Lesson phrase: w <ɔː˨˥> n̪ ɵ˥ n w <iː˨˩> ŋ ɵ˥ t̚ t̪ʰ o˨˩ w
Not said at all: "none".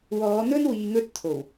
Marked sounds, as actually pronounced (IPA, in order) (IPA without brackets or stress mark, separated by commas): ɔː˨˧, iː˧